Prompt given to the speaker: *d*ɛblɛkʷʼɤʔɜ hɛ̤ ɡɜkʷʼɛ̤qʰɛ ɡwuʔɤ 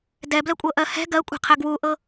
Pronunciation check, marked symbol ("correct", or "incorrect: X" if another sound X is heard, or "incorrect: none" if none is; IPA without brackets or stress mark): correct